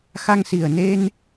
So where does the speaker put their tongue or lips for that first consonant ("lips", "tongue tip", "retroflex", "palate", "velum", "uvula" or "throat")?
velum